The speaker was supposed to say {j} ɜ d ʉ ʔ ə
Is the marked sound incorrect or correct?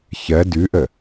incorrect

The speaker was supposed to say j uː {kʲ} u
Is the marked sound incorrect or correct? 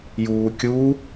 correct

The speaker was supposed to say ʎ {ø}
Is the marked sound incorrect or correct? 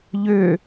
correct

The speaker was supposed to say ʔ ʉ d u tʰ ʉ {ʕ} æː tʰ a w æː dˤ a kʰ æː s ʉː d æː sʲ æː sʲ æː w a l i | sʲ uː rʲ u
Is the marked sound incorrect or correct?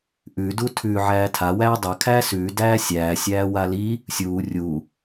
correct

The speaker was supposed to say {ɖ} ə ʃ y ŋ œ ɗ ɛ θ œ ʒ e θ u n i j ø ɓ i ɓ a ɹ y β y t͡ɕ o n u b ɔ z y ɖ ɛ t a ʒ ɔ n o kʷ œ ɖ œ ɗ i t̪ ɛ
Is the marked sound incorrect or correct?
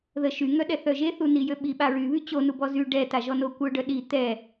incorrect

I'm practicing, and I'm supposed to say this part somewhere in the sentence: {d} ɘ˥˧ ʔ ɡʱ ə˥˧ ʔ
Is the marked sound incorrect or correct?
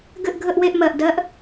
incorrect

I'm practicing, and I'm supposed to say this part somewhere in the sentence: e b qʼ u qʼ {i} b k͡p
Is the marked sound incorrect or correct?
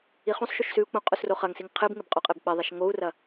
incorrect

